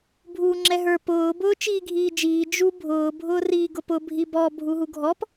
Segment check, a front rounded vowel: absent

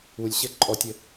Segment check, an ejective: present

